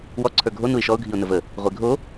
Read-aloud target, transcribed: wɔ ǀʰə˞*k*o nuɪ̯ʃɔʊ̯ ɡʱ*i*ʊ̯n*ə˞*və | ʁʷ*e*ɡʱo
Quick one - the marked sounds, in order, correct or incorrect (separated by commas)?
incorrect, correct, incorrect, correct